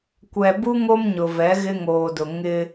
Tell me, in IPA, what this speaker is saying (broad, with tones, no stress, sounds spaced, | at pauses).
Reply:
kʷ ɛ˨ b u˦ ŋ o˦ m ɲ ʊ˨ v ɛ˨˦ ɣ ɪ˦ ŋ oː˨ d ʊ˨ ŋ ɪ˦